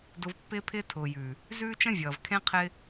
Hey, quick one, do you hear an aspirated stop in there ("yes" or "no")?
yes